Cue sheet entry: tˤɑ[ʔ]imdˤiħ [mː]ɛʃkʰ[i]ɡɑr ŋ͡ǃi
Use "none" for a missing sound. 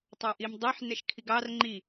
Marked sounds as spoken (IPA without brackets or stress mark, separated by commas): ʔ, n, i